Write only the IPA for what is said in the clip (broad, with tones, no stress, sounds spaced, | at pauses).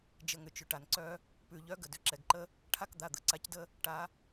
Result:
d͡ʒ ə˩˧˩ ŋ ʏ˩ t͡ʃ ʏ˩ ʈ a˩ n ǀ œ˦ | p ʉ˩ ʎ œ˨˦ ɡ ə˩ d ʏ˩˧˩ ǁ ɛ˩ ɡ ǃ ə˦ | ʈʰ a˦ k d̪ a˩˧˩ d̪ ə˨˦ ǀ a˨˦ c d ə˦ | ʈ a˨˦